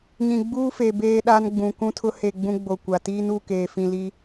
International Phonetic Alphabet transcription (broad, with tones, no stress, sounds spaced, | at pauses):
ɲ ĩ˨ ɡ͡b uː˦ f e˨ b eː˦ ɗ a˦ n ɡ͡b ũ˨ k ũ˦ tʰ ʊ˦ h e˦˨ ɡ͡b ũ˦ ɡ͡b o˨ kʷ a˨ t iː˦ n u˦˨ k eː˨ f ĩ˨ l i˦